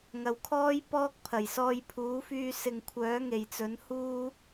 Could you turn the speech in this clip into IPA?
ŋ ɐ˨ w kʰ ɔː˥ j p ɔː˥ k̚ pʰ ɐ˨˩ j s ɔː˧ j pʰ uː˨˥ f yː˧ s ɪ˨ ŋ kʷʰ œː˨˥ ŋ e˨˩ j t͡s ɵ˨˥ n h uː˥

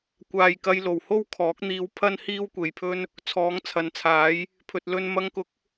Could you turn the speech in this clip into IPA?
kʷ aː˨ j k ɐ˧ j l o˨˩ w h o˥ w kʰ ɔː˨˥ k̚ n̪ iː˧ w pʰ ɐ˥ n h iː˥ w kʷ e˨ j pʰ ɵ˥ n | t͡sʰ ɔː˨˥ ŋ t͡sʰ ɐ˨˥ n t͡sʰ aː˨˥ j | pʰ ɵ˨ t̚ l ɵ˧ n m ɐ˧ ŋ k ʊ˨˥ k̚

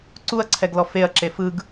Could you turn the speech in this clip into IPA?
ǀ u ɐ̯ ǀʰ ɛ ɡ l ɔ f e ɐ̯ ǁ e f ɯ ɡ

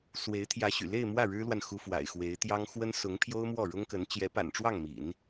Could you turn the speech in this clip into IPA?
s w e˧˥ ɪ̯ t̪ʰ j ä˧˥ ɕ y̰˨˩ l e˥˧ ɪ̯ m w ä˥˩ ɻ ɻ̩˥ l w a˨ n x u˥ f w a̰˨˩ ɪ̯ x w e˧˥ ɪ̯ t̪ j ɑ˥ ŋ x w ə˥ n s ʊ˧˥ ŋ pʰ j o˥ ʊ̯ m w ɔ˥˩ ɻ ʊ˥ ŋ k ə˧˥ n t͡ɕ j ɛ˧˥ p a̰˨˩ n ʈ͡ʂ w ɑ˥˩ ŋ m ḭ˨˩˦ n

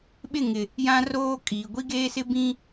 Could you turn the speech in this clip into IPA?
ɓ ɪ˦˨ ŋ ɪ˨ | j ã˦ r oː˦ kʼ iː˨ ɡʷ i˦ ɡ eː˦ s ɪ˦ b ĩ˦

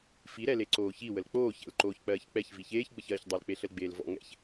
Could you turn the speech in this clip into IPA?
f i ɾ ɛ l e ǀ oː ç i w ə l k͡p oː ç ɛ̰ l ǃ oː ç k͡p ɜː ç k͡p ɛ ç v i ç eː ç ɡ͡b ə ç ɜː ç dˤ ɜ l k͡p e ɬ ə l ɡ͡b eː l v ɔ̰ ŋ ɛ̰ ç

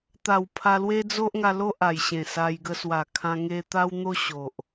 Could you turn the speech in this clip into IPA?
t̪ a˨˩ w pʰ a˧ l w e˦ d͡z o˦ ʔ ŋ a˧ l o˦ ʔ a˨˩ j ɕ ẽ˨˩ s a˧ j ɡ ə˧ s w a˨˩ kʰ ã˧ ŋ e˧ t̪ a˦ w n̪ o˦ ɕ o˨ ʔ

